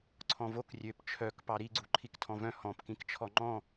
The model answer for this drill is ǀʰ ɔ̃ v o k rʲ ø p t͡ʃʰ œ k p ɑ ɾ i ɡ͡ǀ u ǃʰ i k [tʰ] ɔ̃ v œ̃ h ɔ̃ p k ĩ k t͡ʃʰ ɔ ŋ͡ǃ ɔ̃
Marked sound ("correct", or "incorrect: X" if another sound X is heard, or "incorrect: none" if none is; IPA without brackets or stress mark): correct